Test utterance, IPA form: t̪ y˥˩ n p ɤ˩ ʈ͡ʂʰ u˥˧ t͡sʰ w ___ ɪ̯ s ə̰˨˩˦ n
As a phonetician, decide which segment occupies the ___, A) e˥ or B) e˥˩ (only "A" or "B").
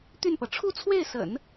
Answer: B